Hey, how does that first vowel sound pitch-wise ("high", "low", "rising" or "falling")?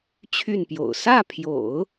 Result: falling